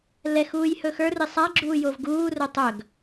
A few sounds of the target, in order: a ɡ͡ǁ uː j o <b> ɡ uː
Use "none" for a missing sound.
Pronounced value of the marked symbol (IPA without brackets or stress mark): v